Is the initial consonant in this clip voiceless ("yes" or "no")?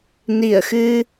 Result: no